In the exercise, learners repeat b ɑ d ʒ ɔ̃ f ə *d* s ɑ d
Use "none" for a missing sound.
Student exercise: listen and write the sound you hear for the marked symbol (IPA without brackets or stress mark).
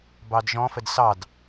d